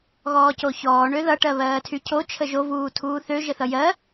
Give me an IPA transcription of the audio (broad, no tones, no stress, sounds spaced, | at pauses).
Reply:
ɣ ɔː c o ç ɔː ɳ ø ð ʌ ʈ ɜ β ɜː tʰ y cʰ o t͡ʃʰ ə ʒ o v uː tʰ uː θ ø ʒ ə θ ʌ j ɜ